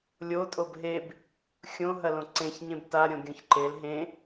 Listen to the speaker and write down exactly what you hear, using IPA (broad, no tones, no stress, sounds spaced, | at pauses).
lʲ o tʼ o b ɦ e b | xʲ õ ɦ ɐ l õ ǀ ẽ ç ɲ ẽ b t a ɾʲ õ ɡʲ õ ç ǃ e l ɦ ẽ